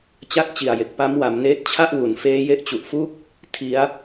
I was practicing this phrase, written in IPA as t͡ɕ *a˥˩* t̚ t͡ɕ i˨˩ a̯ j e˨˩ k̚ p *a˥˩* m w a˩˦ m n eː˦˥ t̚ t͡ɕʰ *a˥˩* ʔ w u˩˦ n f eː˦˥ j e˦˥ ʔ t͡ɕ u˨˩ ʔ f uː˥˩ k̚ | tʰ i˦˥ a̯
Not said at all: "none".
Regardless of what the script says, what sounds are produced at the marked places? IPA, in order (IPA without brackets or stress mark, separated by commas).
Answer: a˥˩, a˦˥, a˥˩